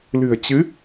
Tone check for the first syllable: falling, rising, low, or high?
low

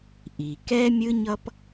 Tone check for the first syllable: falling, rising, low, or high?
low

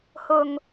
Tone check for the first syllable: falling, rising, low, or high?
low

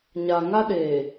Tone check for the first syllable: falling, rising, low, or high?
low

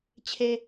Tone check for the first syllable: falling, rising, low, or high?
low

